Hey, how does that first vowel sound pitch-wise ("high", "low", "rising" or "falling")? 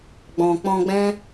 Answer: low